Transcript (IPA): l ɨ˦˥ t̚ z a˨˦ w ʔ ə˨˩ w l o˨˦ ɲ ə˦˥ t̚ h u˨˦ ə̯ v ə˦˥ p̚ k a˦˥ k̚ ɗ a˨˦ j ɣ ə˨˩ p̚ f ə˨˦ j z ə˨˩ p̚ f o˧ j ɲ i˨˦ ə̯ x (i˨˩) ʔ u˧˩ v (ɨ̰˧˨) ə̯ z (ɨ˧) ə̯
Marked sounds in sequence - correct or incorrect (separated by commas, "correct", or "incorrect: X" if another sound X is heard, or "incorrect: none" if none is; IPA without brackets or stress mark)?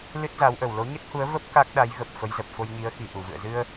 correct, correct, correct